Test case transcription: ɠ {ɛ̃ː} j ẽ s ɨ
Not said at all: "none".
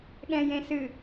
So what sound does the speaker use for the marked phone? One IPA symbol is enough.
ɛ̃ː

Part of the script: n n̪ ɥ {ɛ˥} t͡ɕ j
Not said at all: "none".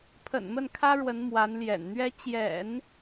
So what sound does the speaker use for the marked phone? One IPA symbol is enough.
ɛ˥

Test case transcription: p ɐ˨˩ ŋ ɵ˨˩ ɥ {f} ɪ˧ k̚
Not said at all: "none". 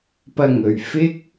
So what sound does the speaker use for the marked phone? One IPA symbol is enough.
f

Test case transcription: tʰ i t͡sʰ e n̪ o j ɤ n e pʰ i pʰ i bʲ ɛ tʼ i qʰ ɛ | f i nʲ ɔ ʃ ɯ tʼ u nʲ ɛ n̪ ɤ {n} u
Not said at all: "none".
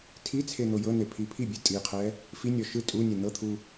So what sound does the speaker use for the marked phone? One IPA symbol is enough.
t̪ʰ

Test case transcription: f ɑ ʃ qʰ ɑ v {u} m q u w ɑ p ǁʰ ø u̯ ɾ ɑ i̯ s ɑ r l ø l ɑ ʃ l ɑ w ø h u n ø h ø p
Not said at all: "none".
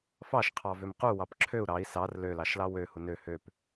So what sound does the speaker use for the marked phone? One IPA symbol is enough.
ø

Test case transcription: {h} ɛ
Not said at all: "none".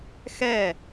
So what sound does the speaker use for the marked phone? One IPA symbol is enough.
x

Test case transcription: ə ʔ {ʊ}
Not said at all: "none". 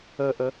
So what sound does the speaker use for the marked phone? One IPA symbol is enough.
ə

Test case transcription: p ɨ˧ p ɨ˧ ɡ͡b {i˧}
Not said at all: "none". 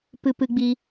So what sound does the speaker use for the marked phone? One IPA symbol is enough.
i˧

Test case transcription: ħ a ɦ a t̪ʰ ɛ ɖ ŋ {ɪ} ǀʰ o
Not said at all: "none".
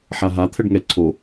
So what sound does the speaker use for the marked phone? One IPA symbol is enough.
ɛ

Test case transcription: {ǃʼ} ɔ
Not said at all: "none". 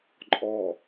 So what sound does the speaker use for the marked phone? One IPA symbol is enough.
ǃʼ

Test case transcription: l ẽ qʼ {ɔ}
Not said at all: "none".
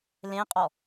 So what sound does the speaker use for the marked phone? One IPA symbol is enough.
ɔ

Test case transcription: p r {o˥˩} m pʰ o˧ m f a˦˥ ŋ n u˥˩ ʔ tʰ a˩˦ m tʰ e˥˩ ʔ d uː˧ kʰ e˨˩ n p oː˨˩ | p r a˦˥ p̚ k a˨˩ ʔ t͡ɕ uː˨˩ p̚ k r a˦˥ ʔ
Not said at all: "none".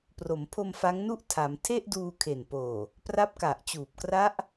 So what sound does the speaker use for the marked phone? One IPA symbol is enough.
o˩˦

